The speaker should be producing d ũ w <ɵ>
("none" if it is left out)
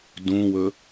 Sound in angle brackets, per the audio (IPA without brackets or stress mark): ɵ